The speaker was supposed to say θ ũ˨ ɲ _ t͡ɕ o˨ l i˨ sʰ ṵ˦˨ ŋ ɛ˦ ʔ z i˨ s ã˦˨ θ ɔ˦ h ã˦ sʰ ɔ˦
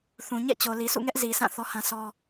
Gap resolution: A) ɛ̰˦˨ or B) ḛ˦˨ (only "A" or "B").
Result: A